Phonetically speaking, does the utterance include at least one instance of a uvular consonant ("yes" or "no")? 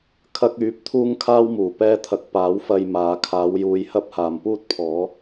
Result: no